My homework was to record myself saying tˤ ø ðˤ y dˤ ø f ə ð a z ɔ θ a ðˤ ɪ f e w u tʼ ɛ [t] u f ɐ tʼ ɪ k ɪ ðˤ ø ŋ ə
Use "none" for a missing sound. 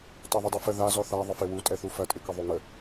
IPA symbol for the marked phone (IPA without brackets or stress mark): θ